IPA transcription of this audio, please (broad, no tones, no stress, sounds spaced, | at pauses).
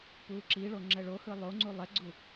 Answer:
p uː ǁ iː ɭ o ŋ͡ǁ ɛ ɭ o h ɯ lˠ o ŋ͡ǀ u lˠ ɛ ɡ͡ǀ u